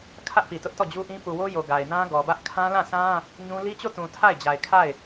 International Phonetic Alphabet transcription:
kʰ ä˦ ʔ p i˨ t ʊ˦ ʔ t ɔ˦˨ d͡ʑ u˦ ʔ ĩ˦ p u˨ w o˦ j o˨ ɡ a˨ ɪ̯ n ã˦ ɡ ɔ˨ b ä˦ ʔ kʰ ã˦ l ã˦˨ s ã˦ | ɲ ũ˦ l i˦ t͡ɕ o˦˨ t ũ˨ tʰ a˦˨ ɪ̯ d͡ʑ a˨ ɪ̯ kʰ a˦˨ ɪ̯

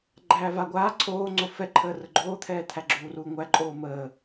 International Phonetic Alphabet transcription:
ɡ͡ǃ æː v a ɡʷ aː ǀʰ oː ŋ͡ǀ o f ɛ ǃʰ əː r ə ɡ͡ǃ oː t̪ʰ ɛː t̪ʰ æ ɡ͡ǁ uː r uː ŋʷ æ ǃʼ oː m əː

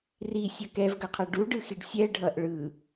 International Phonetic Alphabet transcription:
r i sʲ ʌ k ɛ v ɡ ʌ qʰ ʌ ɖ u ɖ ɯ x i ɖ sʲ ɛ ɖʱ ʌ ʔ ɭ ɯ

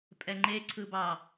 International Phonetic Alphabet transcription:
pʼ ɛ ŋ͡ǃ e ǀʰ ɯ b ɑ

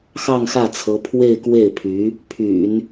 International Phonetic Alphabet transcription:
x ɑ˥˧ ŋ x ä˥˩ t͡sʰ ɤ˧˥ pʰ w e˥˧ ɪ̯ k w e˥˩ ɪ̯ pʰ y˧˥ | pʰ y̰˨˩˦ n

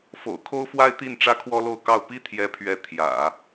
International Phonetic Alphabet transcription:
f o̰˨˩ ʊ̯ kʰ o˥ ʊ̯ f w a˥ ɪ̯ t̪ i˥˩ n ʈ͡ʂ ä˥ kʰ w ɔ˥ l o˥˧ ʊ̯ k ɑ˥˩ ʊ̯ p i˥ t̪ʰ j ɛ˧˥ pʰ ɥ ɛ˧˥ t̪ʰ j ä̰˨˩˦

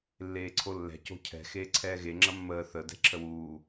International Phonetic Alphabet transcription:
lː eː ǀʰ o lː ɛ̤ c o̤ cʰ ɛ̤ x eː ǀʰ ɛː ɣ e ŋ͡ǁ ɐ mː əː θ ə d ɛ̤ ǁʰ ə w uː

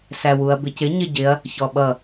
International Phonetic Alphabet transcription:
s æ w u ɐ̯ b ɪ c ɪ ɲ ɪ ɟ ɪ ɐ̯ | ç ɔ ɓ ʌ

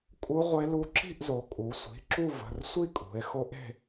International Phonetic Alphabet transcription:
kʼ u˦˥ ʁʷ e˦˥ l u˦˥ ǁ i̤˥˧ ʔ z o˩˧ kʼ u˩˧ sʷ i̤˩˧˩ ǁ u˥˧ v ə̤˩˧˩ r sʷ i˥˧ kʼ ṳ˩˧ e̯ x o˦˥ ʔ e̤˥˧

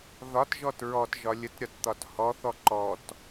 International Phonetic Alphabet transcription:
ð ɒ t ʒ ɔ t ɹ ɔ t ʒ ɒ lʲ ə t ɾʲ ɒ t t̪ ɒ t h ɔ θ ɔ ǃ ɔ t

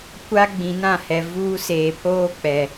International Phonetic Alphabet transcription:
kʷ a˦ ɡ͡b ĩ˨ n ã˦˨ h ɛ˨ v uː˦ s eː˨ pʰ oː˦ k͡p ɛ˨

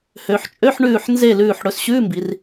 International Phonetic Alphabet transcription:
h ø˩˧ ħ t͡ʃʼ ø˧˥˧ ħ ɳ ʉː˧˩ ħ n z e˧˩ l ʉː˧˩ ħ ɽ ɵ˩˧ s ɕ ʉː˧˥˧ m b i˩˧ r

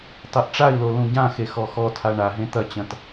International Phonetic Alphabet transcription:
tˤ e ʔ ʈ͡ʂ a i̯ l o l ũ ɟ ã x e x ɔ x ɔ tʰ a ɳ a ɦ ẽ t̪ ɐ t͡ɕ ɐ̃ t

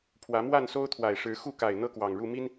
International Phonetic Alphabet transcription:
pʰ w ä˨˦ m w a˥˨ n s o˦ ʊ̯ t̪ʰ w a˨˩ ɪ̯ ʂ ɻ̩˨˦ x u˥˨ k a˨˩ ɪ̯ n̪ ɤ˦ k w ɑ˨˩ ŋ ɻ u˥˨ m i˦ n

